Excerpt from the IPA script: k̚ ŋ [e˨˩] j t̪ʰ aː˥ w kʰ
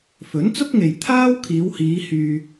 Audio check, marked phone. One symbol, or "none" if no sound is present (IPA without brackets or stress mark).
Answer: e˨